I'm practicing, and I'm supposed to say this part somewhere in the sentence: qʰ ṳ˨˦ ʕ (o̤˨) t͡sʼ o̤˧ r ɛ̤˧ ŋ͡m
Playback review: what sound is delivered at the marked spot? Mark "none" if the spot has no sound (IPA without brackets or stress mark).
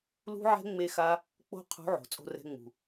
o̤˨